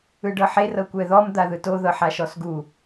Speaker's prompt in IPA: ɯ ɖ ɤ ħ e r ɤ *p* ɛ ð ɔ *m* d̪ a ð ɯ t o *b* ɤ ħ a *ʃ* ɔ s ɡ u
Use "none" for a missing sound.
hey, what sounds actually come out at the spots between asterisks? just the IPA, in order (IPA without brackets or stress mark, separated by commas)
kʷ, m, ð, ʃ